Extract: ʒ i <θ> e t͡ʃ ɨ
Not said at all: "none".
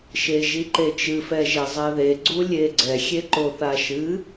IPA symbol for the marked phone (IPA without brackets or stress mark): ǃ